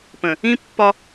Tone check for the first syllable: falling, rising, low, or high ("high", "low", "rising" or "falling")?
low